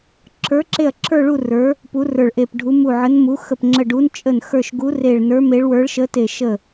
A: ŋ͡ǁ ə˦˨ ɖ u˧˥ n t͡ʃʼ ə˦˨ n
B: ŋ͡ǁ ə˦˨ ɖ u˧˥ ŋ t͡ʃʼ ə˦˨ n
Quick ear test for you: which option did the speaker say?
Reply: A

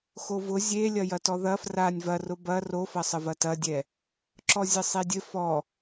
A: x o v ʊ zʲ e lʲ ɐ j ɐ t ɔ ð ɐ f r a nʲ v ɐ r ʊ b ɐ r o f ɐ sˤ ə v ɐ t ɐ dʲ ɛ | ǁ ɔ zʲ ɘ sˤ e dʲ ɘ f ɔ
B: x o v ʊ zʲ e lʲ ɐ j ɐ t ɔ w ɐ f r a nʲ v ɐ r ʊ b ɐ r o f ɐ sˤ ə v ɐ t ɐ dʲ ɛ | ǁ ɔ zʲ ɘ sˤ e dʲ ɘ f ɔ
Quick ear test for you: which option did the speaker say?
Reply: A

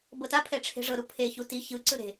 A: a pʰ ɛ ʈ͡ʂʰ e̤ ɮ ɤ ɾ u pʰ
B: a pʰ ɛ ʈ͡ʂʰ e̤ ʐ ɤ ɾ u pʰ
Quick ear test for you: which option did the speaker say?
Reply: B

